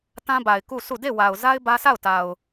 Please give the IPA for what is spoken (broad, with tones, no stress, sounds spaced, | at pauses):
t ã˦ b a˨ ɪ̯ k u˦˨ s u˦˨ d e˦˨ w a˨ ʊ̯ z a˦ ɪ̯ b ä˦ s a˦˨ ʊ̯ t a˨ ʊ̯